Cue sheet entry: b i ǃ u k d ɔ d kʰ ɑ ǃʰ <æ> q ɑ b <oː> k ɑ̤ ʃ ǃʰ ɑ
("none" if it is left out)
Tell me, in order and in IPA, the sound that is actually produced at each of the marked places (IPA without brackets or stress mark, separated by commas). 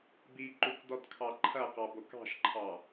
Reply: ɐ, o